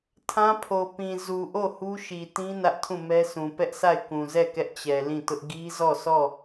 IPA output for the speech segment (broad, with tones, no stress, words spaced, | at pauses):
tʰã˦pʰo˨ pĩ˨ zu˨ʔo˦˨ hu˦ʃi˨tĩ˦ nä˦ʔtʰũ˦˨mɛ˦sʰũ˨ pɛ˦ʔsʰa˦˨ɪ̯ kũ˨zɛ˦˨ kɛ˦ʔt͡ɕɛ˨lĩ˦˨tʊ˦ʔ ɡi˦zɔ˦˨sʰɔ˦˨